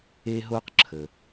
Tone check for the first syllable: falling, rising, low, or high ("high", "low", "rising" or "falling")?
high